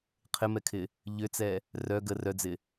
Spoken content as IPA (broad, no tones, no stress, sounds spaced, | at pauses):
qʰ ɪ m ɛ kʰ ɪ | ʎ ʏ t͡s ɛ | r œ ɡ ə r œ d͡z ɪ